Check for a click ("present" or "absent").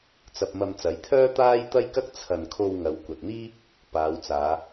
absent